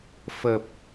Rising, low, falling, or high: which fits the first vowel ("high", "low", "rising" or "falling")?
low